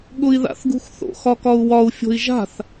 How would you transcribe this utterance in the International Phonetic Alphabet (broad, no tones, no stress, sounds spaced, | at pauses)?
ɠ ʊ i̯ ð a̰ θ ɡ ṳ x θ o̰ x ɒ k ɒ u̯ w ɒ u̯ fʲ o̤ i̯ ʒ a̤ θ